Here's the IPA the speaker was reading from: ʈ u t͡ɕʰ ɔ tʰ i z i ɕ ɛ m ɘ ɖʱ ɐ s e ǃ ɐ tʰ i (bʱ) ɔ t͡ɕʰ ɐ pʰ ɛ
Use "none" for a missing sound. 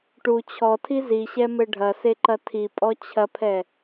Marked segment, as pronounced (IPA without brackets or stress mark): pʼ